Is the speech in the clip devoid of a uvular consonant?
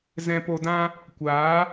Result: yes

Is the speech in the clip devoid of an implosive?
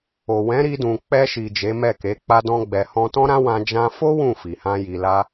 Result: yes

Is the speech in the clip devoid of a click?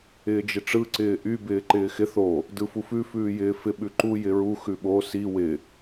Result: no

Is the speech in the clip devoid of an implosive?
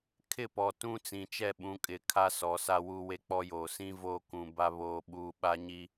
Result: no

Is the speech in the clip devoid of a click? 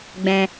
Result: yes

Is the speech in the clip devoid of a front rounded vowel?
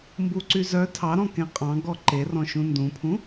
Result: no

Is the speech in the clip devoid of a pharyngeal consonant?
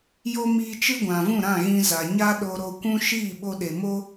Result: yes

